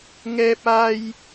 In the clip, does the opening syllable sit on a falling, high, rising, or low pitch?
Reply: high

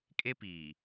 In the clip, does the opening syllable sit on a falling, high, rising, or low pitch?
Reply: high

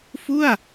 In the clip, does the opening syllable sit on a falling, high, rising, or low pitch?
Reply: falling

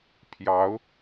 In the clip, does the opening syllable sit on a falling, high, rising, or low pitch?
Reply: rising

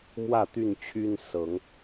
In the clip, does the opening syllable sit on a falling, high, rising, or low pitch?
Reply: falling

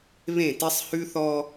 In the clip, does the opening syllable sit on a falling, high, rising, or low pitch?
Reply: falling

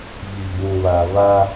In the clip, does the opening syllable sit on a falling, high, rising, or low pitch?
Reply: low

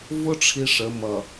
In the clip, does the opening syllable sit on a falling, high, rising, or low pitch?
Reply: high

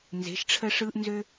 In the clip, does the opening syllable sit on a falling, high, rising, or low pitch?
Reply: rising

